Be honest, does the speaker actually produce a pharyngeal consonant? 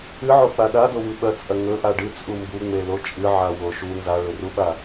yes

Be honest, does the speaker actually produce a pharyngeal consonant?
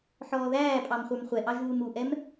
yes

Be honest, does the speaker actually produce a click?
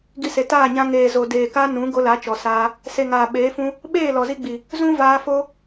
no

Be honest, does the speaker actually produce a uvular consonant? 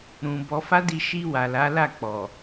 no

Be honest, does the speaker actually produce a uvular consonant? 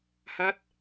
no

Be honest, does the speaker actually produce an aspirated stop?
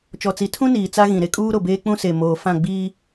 yes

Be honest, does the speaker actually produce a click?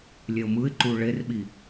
yes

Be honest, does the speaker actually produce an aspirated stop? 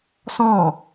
no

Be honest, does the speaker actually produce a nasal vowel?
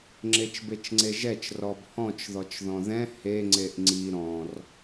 yes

